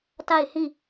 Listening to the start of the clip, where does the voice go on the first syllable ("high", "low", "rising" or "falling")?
falling